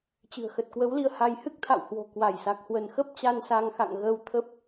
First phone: t͡ɕ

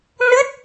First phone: n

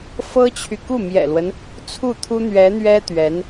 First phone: f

